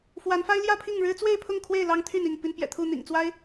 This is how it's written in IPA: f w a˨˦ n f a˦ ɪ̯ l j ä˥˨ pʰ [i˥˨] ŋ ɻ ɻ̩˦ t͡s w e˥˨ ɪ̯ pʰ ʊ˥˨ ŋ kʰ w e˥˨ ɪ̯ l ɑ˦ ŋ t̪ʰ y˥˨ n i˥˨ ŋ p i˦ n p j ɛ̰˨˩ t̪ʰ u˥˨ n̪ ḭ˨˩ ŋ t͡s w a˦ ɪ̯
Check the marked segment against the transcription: correct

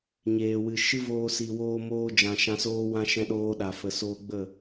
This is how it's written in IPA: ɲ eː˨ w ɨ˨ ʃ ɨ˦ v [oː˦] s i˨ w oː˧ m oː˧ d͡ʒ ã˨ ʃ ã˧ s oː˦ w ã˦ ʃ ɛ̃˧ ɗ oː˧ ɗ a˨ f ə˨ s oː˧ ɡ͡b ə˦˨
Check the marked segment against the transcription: incorrect: oː˧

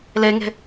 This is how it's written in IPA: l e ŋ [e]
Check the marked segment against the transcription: incorrect: e̤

